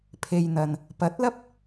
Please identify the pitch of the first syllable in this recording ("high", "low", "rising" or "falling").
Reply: low